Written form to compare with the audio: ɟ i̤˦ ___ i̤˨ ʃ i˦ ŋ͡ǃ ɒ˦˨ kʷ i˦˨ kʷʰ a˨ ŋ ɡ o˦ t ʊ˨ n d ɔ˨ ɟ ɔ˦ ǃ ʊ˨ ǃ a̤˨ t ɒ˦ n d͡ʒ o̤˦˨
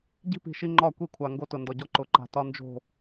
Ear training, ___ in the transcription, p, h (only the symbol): p